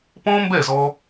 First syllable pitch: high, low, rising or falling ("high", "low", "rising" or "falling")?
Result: high